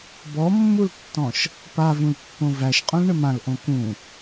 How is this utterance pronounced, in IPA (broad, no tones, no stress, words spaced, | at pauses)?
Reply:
bɔmːultːɔ̃ʃ | pavũlpːõ væʃqʼõlɳɘ mãlʔõ kũ